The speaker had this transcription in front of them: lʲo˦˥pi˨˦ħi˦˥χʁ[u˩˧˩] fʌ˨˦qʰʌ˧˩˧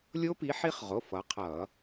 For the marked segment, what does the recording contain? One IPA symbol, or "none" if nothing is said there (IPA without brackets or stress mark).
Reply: o˩˧˩